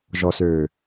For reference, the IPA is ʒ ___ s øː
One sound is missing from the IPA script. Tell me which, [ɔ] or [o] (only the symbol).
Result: ɔ